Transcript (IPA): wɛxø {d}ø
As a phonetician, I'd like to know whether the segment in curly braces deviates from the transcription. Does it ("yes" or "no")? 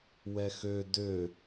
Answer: no